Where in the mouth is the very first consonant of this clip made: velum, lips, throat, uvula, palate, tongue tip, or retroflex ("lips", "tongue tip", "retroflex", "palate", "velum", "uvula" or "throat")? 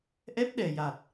throat